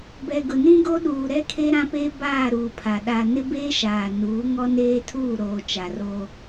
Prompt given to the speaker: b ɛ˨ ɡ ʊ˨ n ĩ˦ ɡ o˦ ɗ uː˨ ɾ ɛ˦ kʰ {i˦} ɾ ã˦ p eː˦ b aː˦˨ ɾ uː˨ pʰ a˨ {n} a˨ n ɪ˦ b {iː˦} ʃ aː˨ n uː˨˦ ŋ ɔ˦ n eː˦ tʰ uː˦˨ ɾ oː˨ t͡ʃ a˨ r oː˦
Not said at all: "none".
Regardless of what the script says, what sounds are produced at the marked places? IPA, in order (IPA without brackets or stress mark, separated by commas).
e˦, ɗ, eː˦